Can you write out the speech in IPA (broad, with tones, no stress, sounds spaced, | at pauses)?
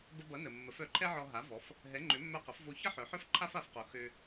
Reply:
b ə˧ b ʌ˩˥ n ə˩ mː ə˩˥ f œ˩˥ ǃʰ ɛ˥ ʕ ɔ˧ ɦ a˩˥ v ɔ˩˥ f | ɦ ɛ˩˥ ŋ͡ǃ ø˩˥ mː œ˧ q ə˩˥ f v o˧ ç ʌ˥ ħ œ˩˥ ħ œ˥ f ǃʰ a˥ f a˩˥ f q o˩˥ x ø˧